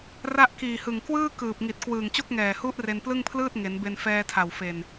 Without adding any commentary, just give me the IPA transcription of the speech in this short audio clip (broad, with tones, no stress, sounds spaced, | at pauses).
r a˦˥ ʔ k iː˨˩ h ɯ˨˩ ŋ k w ɯː˥˩ k ɯː˨˩ p̚ ŋ i˨˩ t̚ k w ɯː˨˩ ŋ t͡ɕ o˥˩ k̚ ŋ ɛː˨˩ h u˦˥ ʔ r e˧ n p l ɯ˥˩ ŋ pʰ l ɯː˥˩ t̚ ŋ e˩˦ n b e˧ n f ɛː˧ tʰ a˨˩ w f e˨˩ n